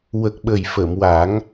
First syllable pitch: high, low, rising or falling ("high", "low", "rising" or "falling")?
low